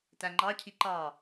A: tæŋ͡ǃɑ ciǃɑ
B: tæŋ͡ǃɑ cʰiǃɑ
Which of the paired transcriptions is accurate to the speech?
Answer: B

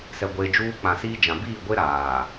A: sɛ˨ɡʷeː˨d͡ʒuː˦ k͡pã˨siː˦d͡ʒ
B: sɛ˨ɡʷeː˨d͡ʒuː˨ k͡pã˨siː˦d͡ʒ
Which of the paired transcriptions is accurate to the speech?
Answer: A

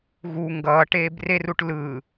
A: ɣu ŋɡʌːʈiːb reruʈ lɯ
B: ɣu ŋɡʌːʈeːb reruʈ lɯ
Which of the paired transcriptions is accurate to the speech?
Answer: B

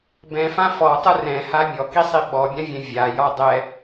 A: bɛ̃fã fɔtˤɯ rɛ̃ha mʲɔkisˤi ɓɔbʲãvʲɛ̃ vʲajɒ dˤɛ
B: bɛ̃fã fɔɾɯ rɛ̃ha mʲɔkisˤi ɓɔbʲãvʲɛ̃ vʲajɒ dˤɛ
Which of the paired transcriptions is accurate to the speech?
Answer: A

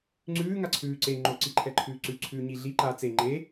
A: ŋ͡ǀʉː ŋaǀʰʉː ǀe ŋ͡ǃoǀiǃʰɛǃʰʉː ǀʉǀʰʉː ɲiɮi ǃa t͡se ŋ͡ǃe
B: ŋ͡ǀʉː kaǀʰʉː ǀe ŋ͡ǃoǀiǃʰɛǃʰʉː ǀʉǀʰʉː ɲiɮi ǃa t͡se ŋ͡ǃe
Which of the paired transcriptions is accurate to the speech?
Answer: A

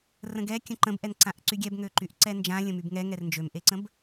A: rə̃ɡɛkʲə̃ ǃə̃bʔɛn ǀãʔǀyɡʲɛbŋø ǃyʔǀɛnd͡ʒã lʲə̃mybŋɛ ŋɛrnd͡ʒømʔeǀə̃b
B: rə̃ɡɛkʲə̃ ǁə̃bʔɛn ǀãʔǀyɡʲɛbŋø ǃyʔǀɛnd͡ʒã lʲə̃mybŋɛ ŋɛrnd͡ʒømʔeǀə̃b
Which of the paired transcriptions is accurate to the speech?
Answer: A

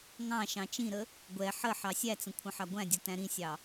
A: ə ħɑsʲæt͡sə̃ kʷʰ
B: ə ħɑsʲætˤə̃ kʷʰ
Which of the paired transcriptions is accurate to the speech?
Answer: A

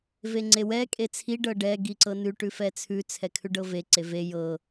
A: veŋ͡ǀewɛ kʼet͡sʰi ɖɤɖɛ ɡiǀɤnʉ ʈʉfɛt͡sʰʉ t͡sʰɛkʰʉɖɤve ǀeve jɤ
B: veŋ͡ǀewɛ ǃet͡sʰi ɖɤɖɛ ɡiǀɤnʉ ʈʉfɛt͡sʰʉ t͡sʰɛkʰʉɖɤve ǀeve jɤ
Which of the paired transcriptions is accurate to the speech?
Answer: A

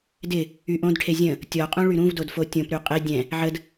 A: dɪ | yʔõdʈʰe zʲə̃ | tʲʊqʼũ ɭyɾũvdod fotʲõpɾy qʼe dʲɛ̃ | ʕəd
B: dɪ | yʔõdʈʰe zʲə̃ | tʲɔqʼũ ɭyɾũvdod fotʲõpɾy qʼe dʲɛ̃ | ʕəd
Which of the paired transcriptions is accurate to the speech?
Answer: B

